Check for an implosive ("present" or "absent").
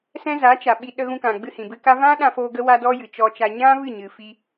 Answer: present